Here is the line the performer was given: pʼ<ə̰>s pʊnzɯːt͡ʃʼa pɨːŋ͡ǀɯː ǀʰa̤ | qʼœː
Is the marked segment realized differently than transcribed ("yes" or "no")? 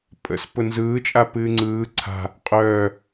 no